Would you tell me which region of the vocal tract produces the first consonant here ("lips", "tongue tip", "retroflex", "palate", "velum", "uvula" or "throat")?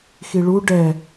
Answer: velum